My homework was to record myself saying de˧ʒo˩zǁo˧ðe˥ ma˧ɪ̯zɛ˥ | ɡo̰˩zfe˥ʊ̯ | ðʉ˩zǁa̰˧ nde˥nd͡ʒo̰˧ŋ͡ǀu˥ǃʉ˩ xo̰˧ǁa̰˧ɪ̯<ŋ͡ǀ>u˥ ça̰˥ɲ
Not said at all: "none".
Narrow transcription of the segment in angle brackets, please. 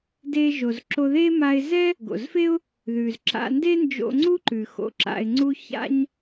ŋ͡ǀ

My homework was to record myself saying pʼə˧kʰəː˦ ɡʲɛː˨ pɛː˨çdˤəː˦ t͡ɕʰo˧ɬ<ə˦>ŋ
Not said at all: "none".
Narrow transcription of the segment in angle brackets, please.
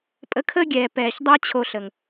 ə˨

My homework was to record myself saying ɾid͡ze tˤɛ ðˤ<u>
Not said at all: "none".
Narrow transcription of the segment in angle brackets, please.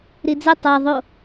o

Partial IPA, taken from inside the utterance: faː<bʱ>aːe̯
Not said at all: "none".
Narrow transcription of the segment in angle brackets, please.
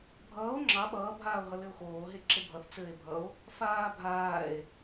bʱ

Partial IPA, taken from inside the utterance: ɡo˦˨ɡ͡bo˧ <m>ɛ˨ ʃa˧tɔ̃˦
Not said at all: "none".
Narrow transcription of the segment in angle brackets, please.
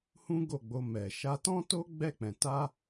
m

